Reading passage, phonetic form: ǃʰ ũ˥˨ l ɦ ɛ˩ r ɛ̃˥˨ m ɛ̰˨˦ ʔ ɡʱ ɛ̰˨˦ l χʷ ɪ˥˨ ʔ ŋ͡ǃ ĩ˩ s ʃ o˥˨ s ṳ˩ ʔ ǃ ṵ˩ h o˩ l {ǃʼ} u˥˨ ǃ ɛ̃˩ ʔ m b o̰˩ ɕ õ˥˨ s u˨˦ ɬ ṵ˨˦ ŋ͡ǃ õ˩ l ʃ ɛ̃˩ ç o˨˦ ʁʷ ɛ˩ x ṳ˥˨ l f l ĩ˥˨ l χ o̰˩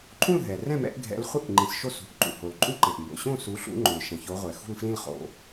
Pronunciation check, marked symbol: correct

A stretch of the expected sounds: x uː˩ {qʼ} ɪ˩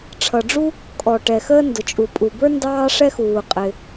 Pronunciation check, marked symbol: correct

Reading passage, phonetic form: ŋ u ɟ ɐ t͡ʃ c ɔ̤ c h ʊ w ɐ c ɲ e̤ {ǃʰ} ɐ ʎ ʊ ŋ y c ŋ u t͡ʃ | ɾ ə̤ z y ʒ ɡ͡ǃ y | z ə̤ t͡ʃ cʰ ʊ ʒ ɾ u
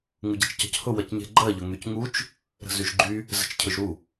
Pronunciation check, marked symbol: incorrect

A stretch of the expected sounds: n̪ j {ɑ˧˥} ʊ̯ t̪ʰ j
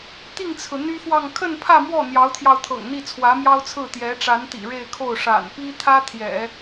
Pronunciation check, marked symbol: correct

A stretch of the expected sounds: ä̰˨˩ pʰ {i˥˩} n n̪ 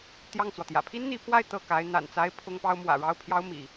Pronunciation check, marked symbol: incorrect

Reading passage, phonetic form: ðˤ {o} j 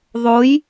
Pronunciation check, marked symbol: correct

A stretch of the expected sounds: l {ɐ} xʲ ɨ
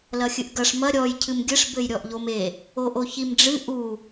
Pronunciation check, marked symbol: correct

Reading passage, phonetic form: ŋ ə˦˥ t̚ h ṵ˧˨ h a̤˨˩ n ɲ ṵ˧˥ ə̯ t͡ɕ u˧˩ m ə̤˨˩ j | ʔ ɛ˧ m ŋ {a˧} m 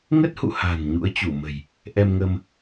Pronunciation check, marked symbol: incorrect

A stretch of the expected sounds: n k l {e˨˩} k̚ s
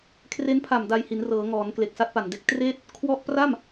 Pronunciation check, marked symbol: correct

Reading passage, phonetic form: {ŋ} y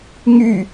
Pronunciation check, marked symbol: correct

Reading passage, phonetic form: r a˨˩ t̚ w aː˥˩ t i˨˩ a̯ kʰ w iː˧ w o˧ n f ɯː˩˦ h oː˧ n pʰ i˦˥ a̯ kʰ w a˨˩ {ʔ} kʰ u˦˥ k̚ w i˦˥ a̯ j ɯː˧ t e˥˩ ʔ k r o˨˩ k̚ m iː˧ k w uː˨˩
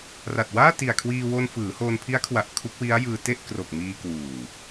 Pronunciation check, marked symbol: correct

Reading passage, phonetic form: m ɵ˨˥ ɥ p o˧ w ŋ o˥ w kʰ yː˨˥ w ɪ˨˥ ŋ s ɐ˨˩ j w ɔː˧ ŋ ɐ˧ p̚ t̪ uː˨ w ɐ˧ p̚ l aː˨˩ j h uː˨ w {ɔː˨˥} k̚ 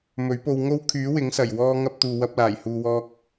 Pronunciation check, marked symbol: incorrect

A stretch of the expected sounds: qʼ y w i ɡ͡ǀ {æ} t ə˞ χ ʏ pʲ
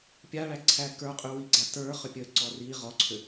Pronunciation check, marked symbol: correct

